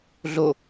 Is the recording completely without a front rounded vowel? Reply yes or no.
yes